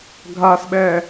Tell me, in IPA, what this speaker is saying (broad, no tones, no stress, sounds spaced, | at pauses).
ɡʱ a s ɓ ɛ